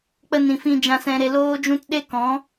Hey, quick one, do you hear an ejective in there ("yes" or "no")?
no